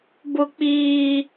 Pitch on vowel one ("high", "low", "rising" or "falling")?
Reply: high